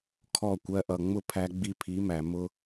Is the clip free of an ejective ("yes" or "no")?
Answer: yes